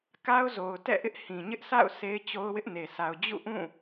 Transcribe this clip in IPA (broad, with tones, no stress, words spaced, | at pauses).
ka˦ʊ̯zo˨ʊ̯tɛ̰˦˨ʔɪ˦ʔ hĩ˨ɲɪ˦ʔsʰa̰˦˨ʊ̯ sʰe˦ɪ̯t͡ɕo˦ʊ̯wɪ˦ʔne˨ sa˨ʊ̯d͡ʑṵ˦˨ʔũ˦˨